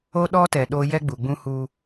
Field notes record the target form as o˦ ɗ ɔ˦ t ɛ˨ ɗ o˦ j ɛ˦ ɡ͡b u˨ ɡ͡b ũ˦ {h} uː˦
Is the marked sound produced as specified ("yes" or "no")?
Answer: yes